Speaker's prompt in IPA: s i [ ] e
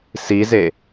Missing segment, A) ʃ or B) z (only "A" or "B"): B